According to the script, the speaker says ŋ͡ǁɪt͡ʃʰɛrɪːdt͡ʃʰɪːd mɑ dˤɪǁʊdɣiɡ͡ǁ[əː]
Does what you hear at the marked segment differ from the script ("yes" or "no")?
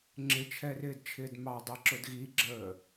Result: no